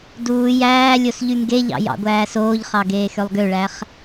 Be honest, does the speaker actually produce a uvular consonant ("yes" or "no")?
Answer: yes